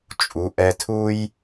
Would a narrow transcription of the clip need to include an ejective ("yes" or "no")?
yes